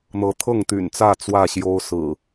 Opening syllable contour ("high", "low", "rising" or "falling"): rising